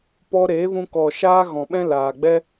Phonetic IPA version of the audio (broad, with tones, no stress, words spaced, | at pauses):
pɔ˧ɾeː˨˦vũ˧kɔ˨ ʃaː˦ɣɔ̃˨ɓɛ̃˦ laː˨ɡ͡bɛ˦